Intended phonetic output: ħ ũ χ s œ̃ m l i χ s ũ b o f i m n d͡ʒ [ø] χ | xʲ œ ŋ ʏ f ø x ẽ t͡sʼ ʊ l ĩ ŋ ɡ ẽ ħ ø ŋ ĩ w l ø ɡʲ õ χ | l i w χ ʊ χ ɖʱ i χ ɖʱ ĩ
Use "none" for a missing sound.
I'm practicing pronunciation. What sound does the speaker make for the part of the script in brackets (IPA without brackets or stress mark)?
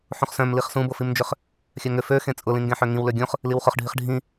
ø